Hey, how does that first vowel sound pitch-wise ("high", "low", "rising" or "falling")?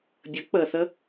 rising